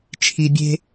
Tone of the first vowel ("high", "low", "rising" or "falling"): low